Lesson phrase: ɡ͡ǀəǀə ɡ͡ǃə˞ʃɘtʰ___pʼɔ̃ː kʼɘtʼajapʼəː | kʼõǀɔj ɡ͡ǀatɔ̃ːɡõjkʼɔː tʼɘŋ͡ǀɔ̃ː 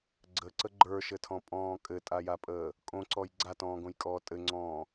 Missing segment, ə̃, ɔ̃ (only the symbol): ɔ̃